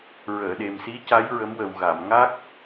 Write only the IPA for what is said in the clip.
ɹəː˨˩˨ɗe˨˩msi˧˥ca˧˥j ɹə˧˥mwə˨˩wɣa˨˩˨m ŋa˦˥k̚

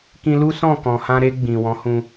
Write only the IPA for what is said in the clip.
kĩ˧lu˦sɔ̃˦˨kɔ̃˨ hã˧ɾe˧ ɡ͡bĩ˨wɔ̃˨˦hũ˧

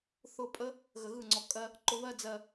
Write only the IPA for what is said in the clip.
θʊ˦˨pʼə˦ | ɣə˧ɣɯ˦˨ŋ͡ǀɔ˧ kʼɜ˦ | ǃʊ˧βɜ˦ d͡zɜ˧

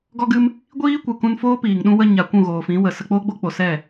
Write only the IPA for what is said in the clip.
ɡɔ˦ɡɨ˦m | ɡʷiː˦kʷɨ˨ kũ˧nfoː˦piː˨ŋ ɗũ˧wə˧ ɲa˨ kʷũ˦˨ɣoː˨fĩ˨˦wə˨ sə˧ k͡poː˦ɡ͡bo˦k͡po˨ sɛ˦˨

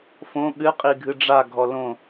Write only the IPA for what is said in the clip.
fõ ɠɨ qʼiɡʱɨɖ͡ʐa ɡʱɔlõ

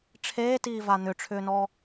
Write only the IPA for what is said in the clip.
ʈ͡ʂʰeːtiːva n̪ʏʈ͡ʂʰʏːnɔ

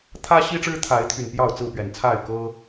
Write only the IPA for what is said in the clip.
t̪ʰä˦ɕi˦ʈ͡ʂɻ̩˦ t̪ʰa˨˦ɪ̯t̪ʰy˨˩n pjɑ˥˨ʊ̯ t͡sɹ̩˥˨pɥɛ˨˩nt͡sʰa˥˨ɪ̯ kɤ˦

